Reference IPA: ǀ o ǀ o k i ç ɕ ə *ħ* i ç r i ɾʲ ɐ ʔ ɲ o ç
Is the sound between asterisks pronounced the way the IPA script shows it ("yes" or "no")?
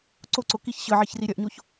no